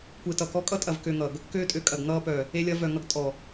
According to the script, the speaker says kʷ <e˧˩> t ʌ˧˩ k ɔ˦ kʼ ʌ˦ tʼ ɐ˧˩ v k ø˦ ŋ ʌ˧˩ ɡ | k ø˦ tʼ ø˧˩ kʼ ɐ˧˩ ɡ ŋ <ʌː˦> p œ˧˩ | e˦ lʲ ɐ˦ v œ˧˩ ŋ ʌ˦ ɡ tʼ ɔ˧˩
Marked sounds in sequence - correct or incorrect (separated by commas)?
correct, correct